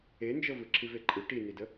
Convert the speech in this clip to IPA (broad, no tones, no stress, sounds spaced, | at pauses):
e n d͡ʒ ɤ v ɯ ǁʰ i v e ǃʼ ɯ ʈ i n i d ə